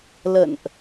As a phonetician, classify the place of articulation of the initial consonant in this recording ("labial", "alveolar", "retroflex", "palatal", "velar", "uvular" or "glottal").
alveolar